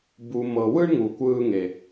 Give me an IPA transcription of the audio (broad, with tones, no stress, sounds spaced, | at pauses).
b u˨ m ɤ˨ w ɯ˥ ɳ ŋ u˨ kʷ ɯː˥ ŋ e˩